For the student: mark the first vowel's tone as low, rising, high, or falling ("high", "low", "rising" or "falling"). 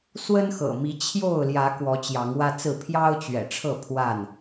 high